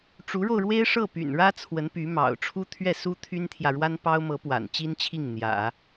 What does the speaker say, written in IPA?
ʈ͡ʂ u˧˥ ɻ o˧ ʊ̯ ɻ w e˥ ɪ̯ ʂ ɤ˥˩ p y̰˨˩ n ɻ ä˥ t͡sʰ w ə˧˥ n p y˧˥ m ɑ̰˨˩ ʊ̯ ʈ͡ʂʰ u˥ t̪ʰ ɥ ɛ˥˩ s u˥ t̪ʰ y˥ n t̪ʰ j ä˨ ɻ w a˥ n p ɑ˥ ʊ̯ m ɤ˧˥ p w a̰˨˩ n t͡ɕ i˥ n t͡ɕʰ i˥˩ ŋ n̪ j ä̰˨˩˦

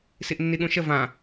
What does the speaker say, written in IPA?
s i ʔ nː i ɠ ũ ʃ ə v ã

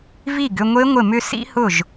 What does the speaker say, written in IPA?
v i˥˩ ɡ ʏ˥˧ ŋʷ e˦˥ ŋʷ ɪ˥˩ m ʏ˥˧ s ḭ˦˥ h ʊ˥˩ ʒ

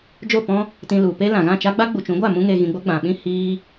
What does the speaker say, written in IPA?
d͡ʒ o˦˨ p ɔ̃˦ | t ĩ˧ l u˨ p e˦ l ã˨ ɣ ã˦˨ t͡ʃ a˦ ɡ͡b a˦ ɡ͡b u˨ t͡ʃ ũ˨˦ ɡʷ a˦˨ m ũ˧ ŋ e˨ ɣ ĩ˨ ɡ͡b o˧ ɡ͡b ã˨ ɓ ĩ˦ h iː˦

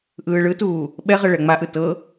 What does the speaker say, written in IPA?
ʔ ɯː ɭ ɯ t uː | ɓ ɛ ʁ ɤ ɭ ɛ ŋ͡m a ʔ ɯ t ɤ

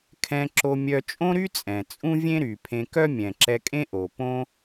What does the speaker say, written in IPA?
kʰ ɛ̃˧ ǁ o˧ mʲ œ˧ t͡ʃʼ õ˥ ɾ y˥ t͡sʼ ɛ̃˩ t͡sʼ ũ˥ vʲ ẽ˥ ɾ y˩ pʰ ẽ˧ k œ˥ mʲ ɛ̃˩ ǁ ɛ˧ kʼ ẽ˥ ʔ o˩ p õ˥

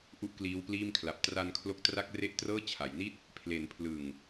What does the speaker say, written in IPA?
ʔ u˥˩ ʔ k l iː˦˥ w p l iː˥˩ m kʰ l a˨˩ p̚ t r a˧ n kʰ l o˦˥ k̚ t r a˥˩ k̚ r e˥˩ ʔ t r ɤː˥˩ t͡ɕʰ a˩˦ j n i˥˩ t̚ | pʰ l e˩˦ n pʰ l ɯ˨˩ ŋ

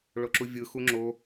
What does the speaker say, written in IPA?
ɭ o ǁ u vʲ ɯ x u ŋ͡ǁ o

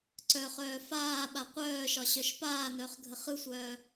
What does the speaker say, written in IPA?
ǀ œ χ œː f aː ɓ a qʷ œː ʃ ɒ ɕ œ ʃ p aː n œ χ ɡʱ ə χ ɯ sʷ œː

